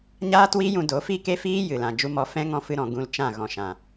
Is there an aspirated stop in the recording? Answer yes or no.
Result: no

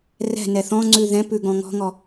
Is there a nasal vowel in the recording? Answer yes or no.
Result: yes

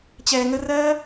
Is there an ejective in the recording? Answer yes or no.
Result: no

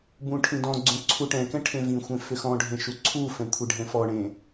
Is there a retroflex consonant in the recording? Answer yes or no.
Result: yes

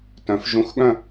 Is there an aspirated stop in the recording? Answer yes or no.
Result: no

